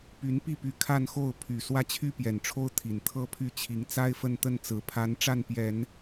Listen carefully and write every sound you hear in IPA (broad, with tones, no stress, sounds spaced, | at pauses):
p y˧˥ n p i˥˩ p y˧˥ kʰ a˥˧ n x o˥˩ ʊ̯ pʰ y˨˩ s w ä˥˩ t͡ɕʰ y˥ p j ɛ˨˩ n ʈ͡ʂʰ o˥ ʊ̯ t̪ʰ i˨˩ n t̪ʰ ɤ˥ pʰ y˥˩ t͡ɕʰ i˧˥ ŋ t͡s a˥ ɪ̯ f ə˥˧ n t̪ ə˥˩ n t͡s ɹ̩˧˥ pʰ a˧˥ n ʈ͡ʂ a˥˩ n p j ɛ˨˩˦ n